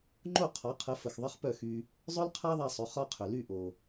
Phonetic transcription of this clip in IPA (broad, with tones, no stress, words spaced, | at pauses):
ŋ͡ǃo˥˩qʰɒ˩˥qʰə˩˥ fə˩xðˤə˥χpœ˥˩xy˧ | zˤœ˥lqʰa˥ðˤa˧sˤʏ˩˥ χɒ˧qʰʏ˩ ly˥˩ʔo˩